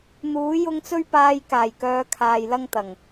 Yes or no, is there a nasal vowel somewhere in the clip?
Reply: no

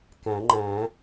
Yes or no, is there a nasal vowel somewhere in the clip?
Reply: yes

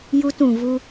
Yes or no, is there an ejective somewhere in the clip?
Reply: no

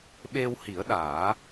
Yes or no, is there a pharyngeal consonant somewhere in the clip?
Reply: no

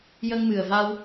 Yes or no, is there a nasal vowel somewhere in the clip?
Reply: no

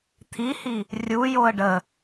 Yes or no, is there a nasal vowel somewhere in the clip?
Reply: no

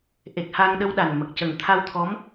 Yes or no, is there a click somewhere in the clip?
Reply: no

